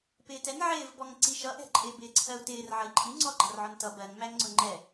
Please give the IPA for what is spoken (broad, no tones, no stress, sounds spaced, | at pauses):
p ɪː t ɛ n ʕ ɪː v b ɔ ŋ ǀ i ʃ ʌ ʔ ɛ̤ ǃʼ ɪː b ɪː ǀʰ ɜ u̯ t ɪː r ʕ ʌ i̯ ǃʼ i ŋ͡ǀ ɔ ɡ͡ǃ ɑ r ʕ ɔ n t ʌ b ɜ ŋ m æ ŋ ŋ͡ǀ ʊ ŋ͡ǃ ɛ